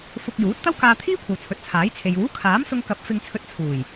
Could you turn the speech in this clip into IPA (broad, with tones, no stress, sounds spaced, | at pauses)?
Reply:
f ʊ˧ k̚ j uː˨˥ t̚ t̪ ɐ˥ w k aː˧ t̪ʰ iː˥ kʷʰ ɐ˨ w t͡sʰ ɵ˨˥ t̚ t͡sʰ aː˨˥ j t͡sʰ e˨ j uː˨˥ kʰ aː˨˥ m s ʊ˧ ŋ k ɐ˨˥ p̚ f ɪ˧ ŋ t͡sʰ ɵ˧ t̚ t͡sʰ uː˨˩ j